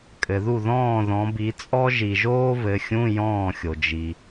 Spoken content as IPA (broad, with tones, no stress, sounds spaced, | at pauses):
kʼ ɘ˨ ð u˥˨ ð ɔ̃ː˥˨ ð ɔ̃˨˦ b i˨˦ t͡sʼ ɔ˥ ʒ i˨ ʒ oː˥ v ɘ˨˦ xʲ ũ˧˥˧ j ɔ̃ː˥˨ xʲ o˨ d͡ʒ i˨